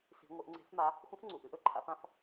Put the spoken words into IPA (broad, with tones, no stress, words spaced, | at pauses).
si̤˧˥ŋʷə˧˥ʔ ŋ͡ǀe̤˧˥fma˧˥ | xʷə̃˧˥fŋ͡ǀu˩˧˩ʔ ɨ˧˥ʔɵ˧˥ǃʰa̰˧˥f ã˧˥f